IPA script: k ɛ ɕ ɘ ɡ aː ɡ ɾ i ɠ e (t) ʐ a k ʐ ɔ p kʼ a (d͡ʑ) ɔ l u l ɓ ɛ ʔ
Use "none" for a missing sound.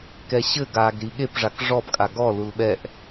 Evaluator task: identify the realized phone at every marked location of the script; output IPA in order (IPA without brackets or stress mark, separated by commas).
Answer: p, ɡ